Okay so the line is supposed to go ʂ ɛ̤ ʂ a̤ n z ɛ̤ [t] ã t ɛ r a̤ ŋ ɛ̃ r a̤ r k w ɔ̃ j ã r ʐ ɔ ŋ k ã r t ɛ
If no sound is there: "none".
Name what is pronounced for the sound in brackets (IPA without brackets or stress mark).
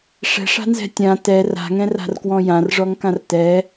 tʲ